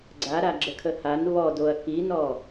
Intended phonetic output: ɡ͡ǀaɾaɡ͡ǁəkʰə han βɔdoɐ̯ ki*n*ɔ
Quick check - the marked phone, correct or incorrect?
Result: correct